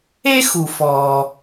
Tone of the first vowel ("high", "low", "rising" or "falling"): high